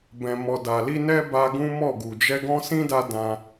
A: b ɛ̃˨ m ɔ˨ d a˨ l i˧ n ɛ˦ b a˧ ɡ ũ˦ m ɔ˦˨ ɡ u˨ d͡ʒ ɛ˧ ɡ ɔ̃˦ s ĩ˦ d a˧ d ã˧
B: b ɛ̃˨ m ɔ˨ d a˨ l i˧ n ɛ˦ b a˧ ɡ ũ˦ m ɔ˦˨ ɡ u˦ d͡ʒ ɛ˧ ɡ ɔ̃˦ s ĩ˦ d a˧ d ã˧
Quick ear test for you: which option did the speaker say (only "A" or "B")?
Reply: A